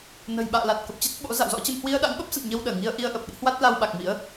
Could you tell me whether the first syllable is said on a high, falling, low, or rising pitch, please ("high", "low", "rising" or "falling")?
low